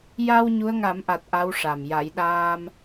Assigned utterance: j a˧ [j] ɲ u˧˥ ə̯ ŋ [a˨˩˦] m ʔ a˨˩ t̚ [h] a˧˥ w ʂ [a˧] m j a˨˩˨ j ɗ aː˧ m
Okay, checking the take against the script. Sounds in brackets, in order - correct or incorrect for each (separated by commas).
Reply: incorrect, correct, incorrect, incorrect